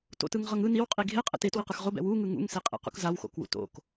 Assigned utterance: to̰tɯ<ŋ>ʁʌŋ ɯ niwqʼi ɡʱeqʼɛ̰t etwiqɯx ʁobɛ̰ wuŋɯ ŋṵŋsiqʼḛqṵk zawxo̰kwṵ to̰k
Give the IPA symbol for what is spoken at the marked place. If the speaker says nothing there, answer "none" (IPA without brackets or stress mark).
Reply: ŋ